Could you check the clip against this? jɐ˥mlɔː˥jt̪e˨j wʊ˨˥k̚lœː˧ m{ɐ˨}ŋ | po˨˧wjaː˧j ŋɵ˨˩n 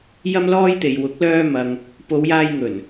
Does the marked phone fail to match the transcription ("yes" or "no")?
no